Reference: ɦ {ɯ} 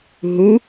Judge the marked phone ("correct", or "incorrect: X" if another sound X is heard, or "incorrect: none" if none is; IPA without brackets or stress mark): incorrect: u